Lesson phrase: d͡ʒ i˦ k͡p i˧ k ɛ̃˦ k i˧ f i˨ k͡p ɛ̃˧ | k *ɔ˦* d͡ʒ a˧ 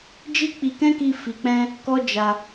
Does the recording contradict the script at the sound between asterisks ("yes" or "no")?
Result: no